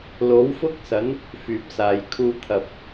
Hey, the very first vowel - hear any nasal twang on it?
no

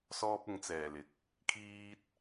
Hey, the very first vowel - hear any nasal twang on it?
no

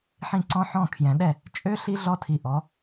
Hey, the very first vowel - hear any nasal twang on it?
yes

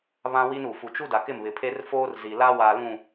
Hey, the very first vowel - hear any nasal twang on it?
yes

